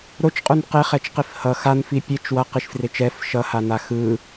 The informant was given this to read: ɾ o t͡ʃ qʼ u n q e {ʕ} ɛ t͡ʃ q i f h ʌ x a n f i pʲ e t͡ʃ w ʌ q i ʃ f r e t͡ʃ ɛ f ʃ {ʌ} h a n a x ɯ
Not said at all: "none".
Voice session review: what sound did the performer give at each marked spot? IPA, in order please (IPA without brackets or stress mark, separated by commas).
χ, ʌ